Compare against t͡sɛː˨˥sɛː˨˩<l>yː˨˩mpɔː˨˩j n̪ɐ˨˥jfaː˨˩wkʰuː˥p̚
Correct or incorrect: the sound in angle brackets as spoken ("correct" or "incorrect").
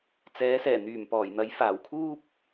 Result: incorrect